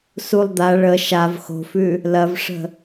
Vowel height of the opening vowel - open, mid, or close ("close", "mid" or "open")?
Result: close